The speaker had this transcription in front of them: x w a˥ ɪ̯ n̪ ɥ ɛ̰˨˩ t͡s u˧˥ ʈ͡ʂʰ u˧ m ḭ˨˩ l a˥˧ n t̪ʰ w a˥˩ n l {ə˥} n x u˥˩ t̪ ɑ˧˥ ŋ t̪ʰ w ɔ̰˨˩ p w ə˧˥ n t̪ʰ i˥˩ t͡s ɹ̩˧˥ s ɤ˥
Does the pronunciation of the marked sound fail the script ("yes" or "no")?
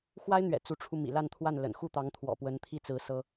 yes